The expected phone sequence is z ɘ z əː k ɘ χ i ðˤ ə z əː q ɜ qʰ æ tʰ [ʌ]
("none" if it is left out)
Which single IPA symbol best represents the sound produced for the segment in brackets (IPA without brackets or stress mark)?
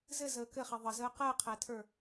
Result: ə˞